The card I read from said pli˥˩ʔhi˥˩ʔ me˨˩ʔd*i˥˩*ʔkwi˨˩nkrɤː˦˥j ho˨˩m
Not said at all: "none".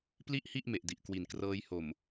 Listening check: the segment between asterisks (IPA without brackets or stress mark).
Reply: i˨˩